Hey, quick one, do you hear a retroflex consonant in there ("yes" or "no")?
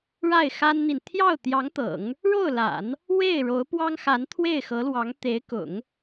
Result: yes